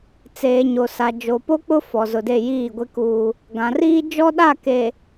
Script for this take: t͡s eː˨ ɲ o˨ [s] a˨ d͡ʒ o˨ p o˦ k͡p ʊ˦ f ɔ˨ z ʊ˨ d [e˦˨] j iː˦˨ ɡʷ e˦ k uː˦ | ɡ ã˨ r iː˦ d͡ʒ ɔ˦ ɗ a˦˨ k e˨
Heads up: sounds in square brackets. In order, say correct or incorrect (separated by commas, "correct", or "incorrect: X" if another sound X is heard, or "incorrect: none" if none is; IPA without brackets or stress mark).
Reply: correct, correct